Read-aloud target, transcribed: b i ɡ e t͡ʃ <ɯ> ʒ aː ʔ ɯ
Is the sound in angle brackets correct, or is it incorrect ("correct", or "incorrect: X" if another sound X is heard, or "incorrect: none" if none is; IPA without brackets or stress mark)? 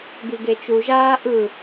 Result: incorrect: u